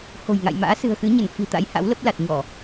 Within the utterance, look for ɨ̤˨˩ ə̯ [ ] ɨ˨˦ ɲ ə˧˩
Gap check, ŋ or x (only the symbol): x